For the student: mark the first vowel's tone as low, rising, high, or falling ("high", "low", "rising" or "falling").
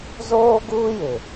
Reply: high